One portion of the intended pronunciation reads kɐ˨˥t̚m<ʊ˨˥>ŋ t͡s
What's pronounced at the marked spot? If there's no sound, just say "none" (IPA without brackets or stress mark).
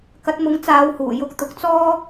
ʊ˨˥